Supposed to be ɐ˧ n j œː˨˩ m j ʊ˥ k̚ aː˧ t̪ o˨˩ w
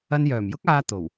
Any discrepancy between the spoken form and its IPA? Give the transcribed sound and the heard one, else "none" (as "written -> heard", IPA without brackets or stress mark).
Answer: none